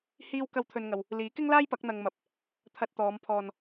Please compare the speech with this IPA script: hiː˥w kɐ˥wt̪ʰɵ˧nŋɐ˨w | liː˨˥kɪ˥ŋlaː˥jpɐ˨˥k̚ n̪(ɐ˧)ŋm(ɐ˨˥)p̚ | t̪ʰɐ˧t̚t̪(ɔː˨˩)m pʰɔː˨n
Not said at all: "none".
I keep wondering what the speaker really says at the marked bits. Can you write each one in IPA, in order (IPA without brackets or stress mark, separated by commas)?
ɐ˧, ɐ˨˥, ɔː˨˧